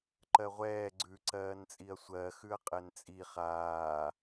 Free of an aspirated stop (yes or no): yes